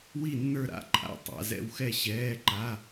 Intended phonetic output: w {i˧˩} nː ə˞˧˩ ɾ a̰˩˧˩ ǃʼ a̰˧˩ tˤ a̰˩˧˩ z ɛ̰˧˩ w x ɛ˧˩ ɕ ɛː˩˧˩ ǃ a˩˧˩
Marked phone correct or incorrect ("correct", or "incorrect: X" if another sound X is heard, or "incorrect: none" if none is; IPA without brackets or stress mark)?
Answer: correct